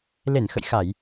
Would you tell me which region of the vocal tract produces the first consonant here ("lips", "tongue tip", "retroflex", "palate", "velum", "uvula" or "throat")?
tongue tip